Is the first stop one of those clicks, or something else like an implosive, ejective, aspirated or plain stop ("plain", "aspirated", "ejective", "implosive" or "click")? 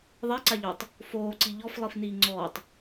click